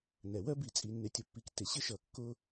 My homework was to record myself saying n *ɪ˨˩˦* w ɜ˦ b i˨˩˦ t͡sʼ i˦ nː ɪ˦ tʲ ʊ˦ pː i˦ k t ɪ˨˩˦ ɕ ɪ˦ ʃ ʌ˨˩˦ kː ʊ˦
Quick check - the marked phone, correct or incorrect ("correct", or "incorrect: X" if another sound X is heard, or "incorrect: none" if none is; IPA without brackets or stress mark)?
incorrect: ɛ˨˩˦